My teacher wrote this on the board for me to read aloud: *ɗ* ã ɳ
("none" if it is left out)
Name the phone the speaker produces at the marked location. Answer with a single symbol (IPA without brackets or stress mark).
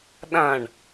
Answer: ɗ